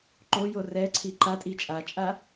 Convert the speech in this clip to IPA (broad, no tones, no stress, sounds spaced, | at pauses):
ǃ o j o r ɛ ǀʰ i ǃ a tʼ i t͡ʃʼ a t͡ʃʼ a